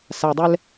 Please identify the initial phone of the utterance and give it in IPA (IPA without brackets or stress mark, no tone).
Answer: s